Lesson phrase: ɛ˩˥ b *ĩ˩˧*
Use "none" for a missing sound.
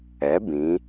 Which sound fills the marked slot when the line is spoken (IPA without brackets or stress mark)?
ĩ˩˧